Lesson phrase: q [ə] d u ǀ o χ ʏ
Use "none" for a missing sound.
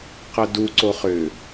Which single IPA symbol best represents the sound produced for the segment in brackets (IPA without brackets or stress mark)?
ə